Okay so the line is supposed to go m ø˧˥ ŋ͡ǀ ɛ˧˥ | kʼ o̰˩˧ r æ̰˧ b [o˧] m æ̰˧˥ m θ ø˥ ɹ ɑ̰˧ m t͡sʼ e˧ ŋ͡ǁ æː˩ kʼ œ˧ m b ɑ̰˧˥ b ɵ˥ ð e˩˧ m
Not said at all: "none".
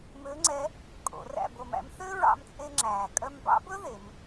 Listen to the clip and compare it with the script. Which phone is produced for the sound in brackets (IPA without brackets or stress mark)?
o˧